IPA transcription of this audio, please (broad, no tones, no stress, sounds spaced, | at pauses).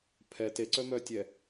pʰ ɛ t e ǀ œ m œ tʲ ɛ